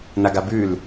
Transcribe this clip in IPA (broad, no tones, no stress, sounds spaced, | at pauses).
n a ɡ a b ʉ l